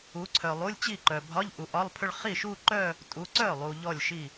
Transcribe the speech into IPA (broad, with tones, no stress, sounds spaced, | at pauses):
u˨˦ ǀʰ œ˨ lˠ u˧˥˧ lʲ t͡ɕ i˥˩ ǃ œ˨ bʱ ɒ˧˥˧ ʎ ʔ u˨ ʔ ɒ˧˥˧ lˠ pʰ ʏ˥˧ ɭ χ i˥˩ ʃ u˥˧ ǃ œ˥˧ | tʼ u˨˦ ǀ œ˥˩ lˠ u˨ ʎ ɔ˥˩ lʲ ʃ i˥˩